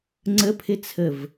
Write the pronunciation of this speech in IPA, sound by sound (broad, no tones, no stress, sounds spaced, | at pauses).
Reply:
ŋ͡ǀ ə pʰ ɪ t͡sʰ ə v